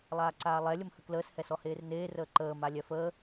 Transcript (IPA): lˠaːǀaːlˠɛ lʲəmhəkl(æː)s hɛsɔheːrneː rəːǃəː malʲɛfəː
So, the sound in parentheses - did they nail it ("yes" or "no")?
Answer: no